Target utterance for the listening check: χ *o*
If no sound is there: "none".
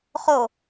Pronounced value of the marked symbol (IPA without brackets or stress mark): o